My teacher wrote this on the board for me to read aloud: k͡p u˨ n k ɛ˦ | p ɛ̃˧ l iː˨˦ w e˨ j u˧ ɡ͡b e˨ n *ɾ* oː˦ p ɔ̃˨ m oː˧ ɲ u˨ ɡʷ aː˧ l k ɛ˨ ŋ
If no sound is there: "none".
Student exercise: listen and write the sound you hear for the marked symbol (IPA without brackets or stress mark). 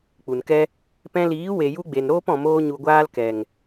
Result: ɾ